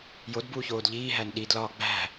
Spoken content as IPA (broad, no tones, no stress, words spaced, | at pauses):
jodbuːçoːd ʎiːɦæn ɗidlɒː ɡ͡bæ̤